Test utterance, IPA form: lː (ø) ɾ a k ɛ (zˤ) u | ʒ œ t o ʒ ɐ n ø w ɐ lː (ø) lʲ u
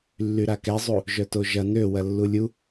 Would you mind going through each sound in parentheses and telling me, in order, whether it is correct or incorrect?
incorrect: y, correct, incorrect: u

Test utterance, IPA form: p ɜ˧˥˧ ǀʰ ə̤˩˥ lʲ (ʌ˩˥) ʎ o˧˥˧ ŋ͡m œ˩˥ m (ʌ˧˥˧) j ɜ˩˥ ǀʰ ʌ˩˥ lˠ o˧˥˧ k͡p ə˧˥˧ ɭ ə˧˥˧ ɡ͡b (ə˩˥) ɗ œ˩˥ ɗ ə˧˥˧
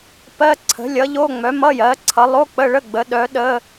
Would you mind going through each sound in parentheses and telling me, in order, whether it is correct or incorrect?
correct, correct, correct

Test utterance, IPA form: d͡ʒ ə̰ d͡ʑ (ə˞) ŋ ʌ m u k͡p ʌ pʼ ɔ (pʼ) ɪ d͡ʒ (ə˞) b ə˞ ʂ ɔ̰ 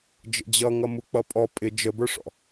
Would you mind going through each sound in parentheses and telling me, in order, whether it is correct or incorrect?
incorrect: ʌ, correct, incorrect: ə

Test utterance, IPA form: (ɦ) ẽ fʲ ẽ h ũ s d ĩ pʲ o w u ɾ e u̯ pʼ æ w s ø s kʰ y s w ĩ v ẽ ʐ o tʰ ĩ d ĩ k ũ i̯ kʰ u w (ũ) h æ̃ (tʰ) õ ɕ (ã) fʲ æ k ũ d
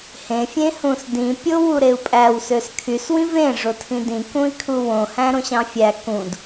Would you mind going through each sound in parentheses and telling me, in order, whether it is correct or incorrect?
incorrect: h, incorrect: õ, incorrect: ɾ, incorrect: ɑ̃

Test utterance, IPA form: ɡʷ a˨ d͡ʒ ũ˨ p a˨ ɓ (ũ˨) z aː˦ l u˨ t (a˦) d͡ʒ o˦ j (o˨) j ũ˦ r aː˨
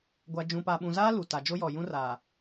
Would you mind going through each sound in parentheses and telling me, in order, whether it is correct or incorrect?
correct, incorrect: a˨, incorrect: ɔ˨

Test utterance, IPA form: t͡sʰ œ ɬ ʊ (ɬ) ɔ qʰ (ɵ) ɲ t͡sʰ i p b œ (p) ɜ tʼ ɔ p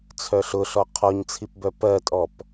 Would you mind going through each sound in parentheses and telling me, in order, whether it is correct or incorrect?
correct, incorrect: ɔ, correct

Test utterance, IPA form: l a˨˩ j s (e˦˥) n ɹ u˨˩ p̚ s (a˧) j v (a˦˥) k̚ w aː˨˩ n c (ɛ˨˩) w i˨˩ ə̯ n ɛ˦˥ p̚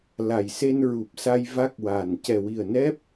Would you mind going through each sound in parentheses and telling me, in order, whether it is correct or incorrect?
incorrect: e˧, correct, correct, correct

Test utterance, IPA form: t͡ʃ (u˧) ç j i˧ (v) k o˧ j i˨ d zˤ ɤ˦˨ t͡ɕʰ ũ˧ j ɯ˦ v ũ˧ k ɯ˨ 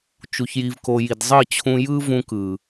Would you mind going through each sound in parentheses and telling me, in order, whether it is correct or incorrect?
correct, correct

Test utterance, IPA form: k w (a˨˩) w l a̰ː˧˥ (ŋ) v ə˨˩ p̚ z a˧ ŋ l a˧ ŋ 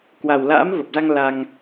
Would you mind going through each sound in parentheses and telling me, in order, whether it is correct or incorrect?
correct, incorrect: m

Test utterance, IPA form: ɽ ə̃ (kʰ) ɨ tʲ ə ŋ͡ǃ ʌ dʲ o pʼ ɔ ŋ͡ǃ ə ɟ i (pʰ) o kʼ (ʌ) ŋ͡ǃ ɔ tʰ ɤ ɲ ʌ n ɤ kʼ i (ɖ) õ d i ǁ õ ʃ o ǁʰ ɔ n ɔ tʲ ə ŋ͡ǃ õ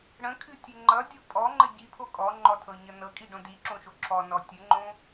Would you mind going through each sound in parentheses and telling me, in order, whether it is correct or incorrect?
correct, correct, incorrect: ɔ, correct

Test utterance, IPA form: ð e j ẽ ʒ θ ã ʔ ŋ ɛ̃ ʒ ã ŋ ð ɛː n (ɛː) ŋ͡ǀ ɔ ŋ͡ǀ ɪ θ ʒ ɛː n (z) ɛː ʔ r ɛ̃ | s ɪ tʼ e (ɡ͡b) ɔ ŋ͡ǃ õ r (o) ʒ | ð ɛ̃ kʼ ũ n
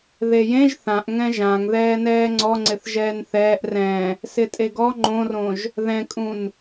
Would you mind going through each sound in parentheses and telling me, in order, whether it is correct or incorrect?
correct, incorrect: θ, incorrect: ɡ, incorrect: õ

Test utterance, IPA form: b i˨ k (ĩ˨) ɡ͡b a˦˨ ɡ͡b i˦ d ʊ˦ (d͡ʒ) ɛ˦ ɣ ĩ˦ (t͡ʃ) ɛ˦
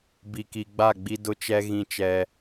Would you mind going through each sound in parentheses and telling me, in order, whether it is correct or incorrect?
incorrect: i˨, incorrect: t͡ʃ, correct

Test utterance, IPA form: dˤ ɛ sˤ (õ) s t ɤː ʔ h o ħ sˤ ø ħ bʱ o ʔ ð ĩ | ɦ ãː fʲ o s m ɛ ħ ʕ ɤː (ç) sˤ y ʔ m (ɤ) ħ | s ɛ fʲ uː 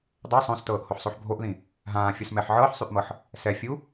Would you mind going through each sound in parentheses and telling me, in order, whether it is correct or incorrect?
correct, incorrect: ħ, correct

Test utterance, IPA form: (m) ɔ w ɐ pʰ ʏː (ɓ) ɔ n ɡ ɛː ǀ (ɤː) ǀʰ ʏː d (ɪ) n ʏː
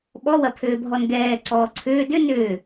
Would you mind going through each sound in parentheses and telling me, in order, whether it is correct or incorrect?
incorrect: ɓ, incorrect: bʱ, incorrect: ɔː, incorrect: ʏ

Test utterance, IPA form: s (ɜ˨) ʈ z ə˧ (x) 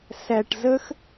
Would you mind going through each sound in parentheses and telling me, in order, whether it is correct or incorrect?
incorrect: æ˨, correct

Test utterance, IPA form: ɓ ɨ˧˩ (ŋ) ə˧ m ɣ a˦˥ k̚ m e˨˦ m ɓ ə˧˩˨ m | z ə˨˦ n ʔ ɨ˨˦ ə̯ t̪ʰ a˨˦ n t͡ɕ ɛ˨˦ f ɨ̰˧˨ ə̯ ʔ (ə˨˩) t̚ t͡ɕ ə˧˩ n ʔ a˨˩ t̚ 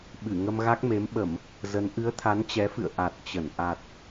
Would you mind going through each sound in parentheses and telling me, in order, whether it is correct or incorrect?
correct, incorrect: a˨˩

